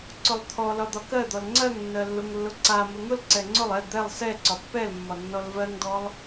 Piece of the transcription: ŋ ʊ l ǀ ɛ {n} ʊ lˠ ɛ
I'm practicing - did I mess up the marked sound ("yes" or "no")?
yes